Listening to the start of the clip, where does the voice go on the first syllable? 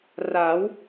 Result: rising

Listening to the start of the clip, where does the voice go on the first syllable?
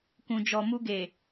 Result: low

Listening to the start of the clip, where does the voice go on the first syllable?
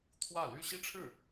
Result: falling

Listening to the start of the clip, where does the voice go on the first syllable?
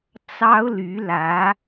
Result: high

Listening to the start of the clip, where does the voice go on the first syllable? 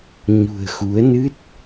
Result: low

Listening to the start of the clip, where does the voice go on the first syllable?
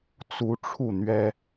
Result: rising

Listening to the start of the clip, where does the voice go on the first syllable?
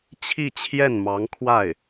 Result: falling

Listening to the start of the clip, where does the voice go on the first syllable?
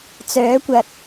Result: rising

